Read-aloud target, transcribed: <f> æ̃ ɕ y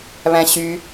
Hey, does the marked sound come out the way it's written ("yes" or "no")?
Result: no